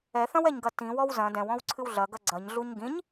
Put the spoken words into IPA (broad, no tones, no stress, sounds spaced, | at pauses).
ɛ θ ɐ̃ w ɛ ɲ ɡ ɐ t ĩ w ɔ w z ɐ̃ d ɛ̃ w ɔ̃ w ǀʰ ɨ w ɮ ɐ ɡ ɐ ɡ͡ǀ ɐ ɲ ɮ u ɲ ɡ ĩ ɲ